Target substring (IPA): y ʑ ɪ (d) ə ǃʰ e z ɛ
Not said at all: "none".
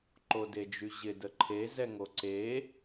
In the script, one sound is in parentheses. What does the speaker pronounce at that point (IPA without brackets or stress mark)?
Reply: d